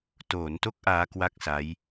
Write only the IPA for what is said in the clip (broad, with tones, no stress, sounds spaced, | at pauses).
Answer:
t oː˩˦ n t o˦˥ k̚ ʔ aː˦˥ k w a˥˩ k̚ s a˦˥ j